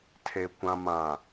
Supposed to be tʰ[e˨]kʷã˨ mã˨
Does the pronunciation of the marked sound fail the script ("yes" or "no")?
no